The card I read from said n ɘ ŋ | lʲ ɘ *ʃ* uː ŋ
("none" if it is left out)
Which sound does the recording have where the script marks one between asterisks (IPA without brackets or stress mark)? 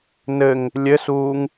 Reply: s